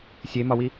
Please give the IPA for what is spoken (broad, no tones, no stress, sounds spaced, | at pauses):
sʲ e m ɒ w i